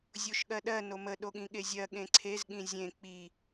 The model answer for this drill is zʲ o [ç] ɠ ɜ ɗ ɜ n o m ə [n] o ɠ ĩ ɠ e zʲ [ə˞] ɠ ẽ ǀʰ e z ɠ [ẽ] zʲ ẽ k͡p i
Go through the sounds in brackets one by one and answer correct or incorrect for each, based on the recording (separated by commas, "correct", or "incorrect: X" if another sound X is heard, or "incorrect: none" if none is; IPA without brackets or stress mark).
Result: incorrect: ʃ, incorrect: ɗ, incorrect: ɜ, incorrect: ĩ